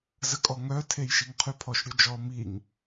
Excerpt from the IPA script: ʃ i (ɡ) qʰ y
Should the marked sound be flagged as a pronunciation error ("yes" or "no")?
yes